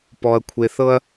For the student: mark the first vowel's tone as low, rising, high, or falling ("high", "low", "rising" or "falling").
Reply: low